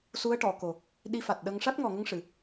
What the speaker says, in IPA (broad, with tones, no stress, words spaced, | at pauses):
su˧˥ə̯ʈɔ˨˩˨ko˨˩ | ɗi˧fa˨˩t̚ɗə˧ŋ ʂa˦˥t̚ŋɔ˨˩ŋə˧ŋʂɨ˨˩˨